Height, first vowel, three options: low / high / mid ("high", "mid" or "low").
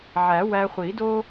low